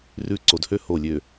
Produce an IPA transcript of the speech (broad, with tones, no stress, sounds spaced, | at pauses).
r ʉ˦ ǀ o˨ d h ø˦ h o˦˨ lʲ ø˨